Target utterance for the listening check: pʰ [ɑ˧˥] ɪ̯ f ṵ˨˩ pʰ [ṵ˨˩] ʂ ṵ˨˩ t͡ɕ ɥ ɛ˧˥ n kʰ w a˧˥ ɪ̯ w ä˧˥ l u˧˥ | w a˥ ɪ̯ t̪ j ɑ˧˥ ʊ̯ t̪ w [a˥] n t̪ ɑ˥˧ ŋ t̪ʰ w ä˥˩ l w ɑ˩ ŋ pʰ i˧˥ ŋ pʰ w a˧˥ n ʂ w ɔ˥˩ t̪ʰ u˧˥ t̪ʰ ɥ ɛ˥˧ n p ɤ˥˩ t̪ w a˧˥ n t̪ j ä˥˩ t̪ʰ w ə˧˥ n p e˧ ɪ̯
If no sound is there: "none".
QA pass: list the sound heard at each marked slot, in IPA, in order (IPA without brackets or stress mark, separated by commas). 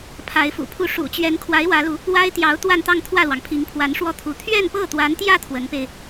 a˧˥, u˥, a˥˧